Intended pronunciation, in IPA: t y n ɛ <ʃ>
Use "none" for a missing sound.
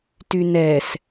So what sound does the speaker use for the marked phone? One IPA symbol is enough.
s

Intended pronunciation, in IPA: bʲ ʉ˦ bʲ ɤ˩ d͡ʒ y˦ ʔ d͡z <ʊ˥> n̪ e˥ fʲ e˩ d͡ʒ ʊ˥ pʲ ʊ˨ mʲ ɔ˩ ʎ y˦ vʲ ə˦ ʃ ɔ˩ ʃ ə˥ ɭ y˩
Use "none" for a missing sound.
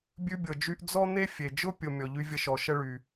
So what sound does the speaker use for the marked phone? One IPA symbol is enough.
ɔ˥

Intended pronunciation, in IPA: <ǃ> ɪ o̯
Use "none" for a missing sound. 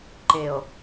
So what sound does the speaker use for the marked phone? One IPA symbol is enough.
ǃ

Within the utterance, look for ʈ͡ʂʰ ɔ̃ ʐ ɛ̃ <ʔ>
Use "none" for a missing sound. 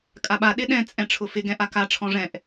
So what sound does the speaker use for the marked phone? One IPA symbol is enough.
ʔ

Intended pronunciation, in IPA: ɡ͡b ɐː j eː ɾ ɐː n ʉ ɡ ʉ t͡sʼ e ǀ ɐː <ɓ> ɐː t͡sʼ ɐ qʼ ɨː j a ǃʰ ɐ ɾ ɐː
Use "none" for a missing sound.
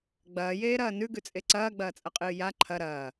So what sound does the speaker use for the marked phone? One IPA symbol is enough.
ɡ͡b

